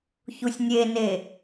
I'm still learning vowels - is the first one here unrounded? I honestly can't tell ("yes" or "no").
no